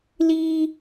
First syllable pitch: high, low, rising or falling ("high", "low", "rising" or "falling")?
high